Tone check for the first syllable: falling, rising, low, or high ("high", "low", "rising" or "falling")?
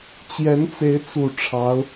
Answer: rising